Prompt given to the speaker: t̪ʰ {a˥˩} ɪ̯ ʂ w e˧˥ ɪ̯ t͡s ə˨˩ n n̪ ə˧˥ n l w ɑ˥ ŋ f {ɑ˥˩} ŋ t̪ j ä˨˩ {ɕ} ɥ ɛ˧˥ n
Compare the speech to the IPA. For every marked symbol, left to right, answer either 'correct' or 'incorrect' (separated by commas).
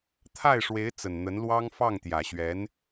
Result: correct, correct, correct